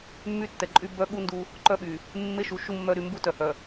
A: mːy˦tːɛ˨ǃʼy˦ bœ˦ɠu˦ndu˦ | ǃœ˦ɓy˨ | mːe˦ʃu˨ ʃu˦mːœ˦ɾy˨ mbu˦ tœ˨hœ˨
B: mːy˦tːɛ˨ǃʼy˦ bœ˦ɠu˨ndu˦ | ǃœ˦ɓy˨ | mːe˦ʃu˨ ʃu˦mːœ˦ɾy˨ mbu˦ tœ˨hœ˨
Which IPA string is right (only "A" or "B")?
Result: A